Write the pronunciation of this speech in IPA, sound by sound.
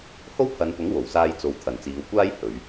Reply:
h o˥ w pʰ ɐ˨˧ n p ʊ˨˥ ŋ w o˨˩ w s aː˧ j t͡s o˨˧ w t̪ʰ ɐ˨ n t͡s iː˨˧ w kʷ aː˥ j h ɵ˨˧ ɥ

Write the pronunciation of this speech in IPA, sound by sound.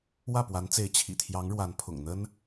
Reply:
w ä˥˩ p w a˧˥ n t͡s e˧˥ ɪ̯ t͡ɕʰ ḭ˨˩ t̪ʰ j ɑ˧˥ ŋ ɻ w a˧˥ n pʰ ʊ̰˨˩ ŋ n̪ ə˥ n

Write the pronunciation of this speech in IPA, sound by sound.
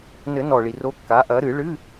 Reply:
n ɘ˨˩˦ n ɔ˩ ɭ i˩ r o˨˦ kː a˨˦ ʔ ɐ˨˦ ɾ ɨ˨˩˦ ɭ ɨ˧˥˧

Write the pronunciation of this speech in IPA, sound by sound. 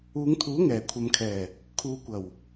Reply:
uː˨˧ ŋ t̪ʰ uː˨˥ ŋ ɛː˨˩ kʷʰ ɐ˨ m kʰ ɛː˨˩ | kʰ uː˨ kʷ ɐ˨˩ w

